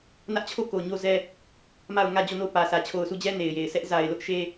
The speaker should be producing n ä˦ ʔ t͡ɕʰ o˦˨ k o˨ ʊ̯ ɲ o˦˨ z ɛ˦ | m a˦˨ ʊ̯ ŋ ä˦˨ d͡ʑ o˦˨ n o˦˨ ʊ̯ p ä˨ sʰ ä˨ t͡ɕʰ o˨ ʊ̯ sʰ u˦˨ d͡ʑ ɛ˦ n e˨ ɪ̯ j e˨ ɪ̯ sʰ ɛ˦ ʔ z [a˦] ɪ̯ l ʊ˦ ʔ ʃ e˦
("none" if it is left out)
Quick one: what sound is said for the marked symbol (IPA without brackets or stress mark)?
a˨